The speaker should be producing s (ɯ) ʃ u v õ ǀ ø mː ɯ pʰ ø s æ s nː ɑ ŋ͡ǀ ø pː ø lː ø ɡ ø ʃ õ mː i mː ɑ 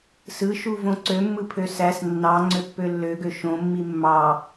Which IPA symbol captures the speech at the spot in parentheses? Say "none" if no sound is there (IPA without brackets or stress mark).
ɯ